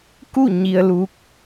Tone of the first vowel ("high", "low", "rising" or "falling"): falling